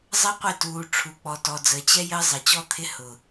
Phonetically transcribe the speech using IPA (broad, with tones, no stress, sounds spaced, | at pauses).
zˤ ə˦ qʷ ɪ˦˨ t uː˨ ʈ͡ʂʰ u˨ k͡p ɔ˨ t ɔ˨ d͡z əː˨ t͡ɕ ɛ˦ j əː˦ zˤ ə˨ t͡ɕ ɔ˦ t̪ʰ ɪ˦ h ʊ˨